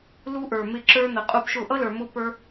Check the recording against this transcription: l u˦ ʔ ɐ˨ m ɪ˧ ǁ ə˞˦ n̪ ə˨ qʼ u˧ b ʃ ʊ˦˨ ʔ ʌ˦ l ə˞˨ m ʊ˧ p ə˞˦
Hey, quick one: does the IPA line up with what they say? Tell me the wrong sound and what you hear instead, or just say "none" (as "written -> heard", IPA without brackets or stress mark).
ɐ˨ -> ə˞˨